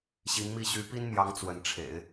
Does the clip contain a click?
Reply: no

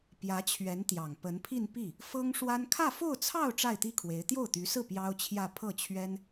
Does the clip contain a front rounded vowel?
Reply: yes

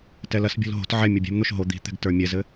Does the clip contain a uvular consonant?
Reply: no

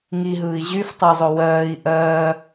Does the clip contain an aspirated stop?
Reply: no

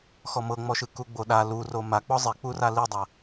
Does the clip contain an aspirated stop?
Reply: no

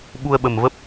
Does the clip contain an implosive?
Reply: yes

